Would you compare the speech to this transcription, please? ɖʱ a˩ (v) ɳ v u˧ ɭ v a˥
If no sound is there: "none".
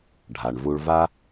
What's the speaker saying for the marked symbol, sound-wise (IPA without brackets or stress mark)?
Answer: none